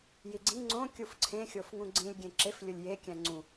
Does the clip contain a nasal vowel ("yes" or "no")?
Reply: yes